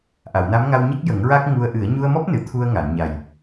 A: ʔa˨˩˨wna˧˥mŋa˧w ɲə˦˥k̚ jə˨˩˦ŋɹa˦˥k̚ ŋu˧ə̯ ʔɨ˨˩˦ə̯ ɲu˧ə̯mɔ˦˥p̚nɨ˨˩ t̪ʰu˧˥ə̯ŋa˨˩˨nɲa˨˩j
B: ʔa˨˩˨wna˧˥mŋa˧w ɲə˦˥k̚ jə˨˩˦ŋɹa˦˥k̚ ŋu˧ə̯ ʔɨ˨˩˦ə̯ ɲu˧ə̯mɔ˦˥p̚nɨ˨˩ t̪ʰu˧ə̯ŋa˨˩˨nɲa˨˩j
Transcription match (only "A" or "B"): B